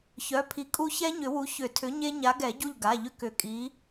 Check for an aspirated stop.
present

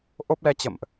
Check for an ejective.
absent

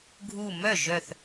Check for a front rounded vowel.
present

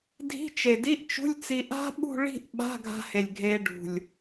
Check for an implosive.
present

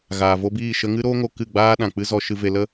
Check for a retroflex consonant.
absent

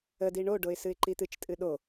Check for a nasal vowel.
absent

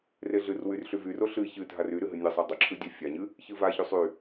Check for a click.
present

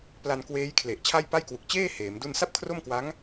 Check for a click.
absent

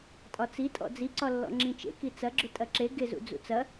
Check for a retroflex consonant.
absent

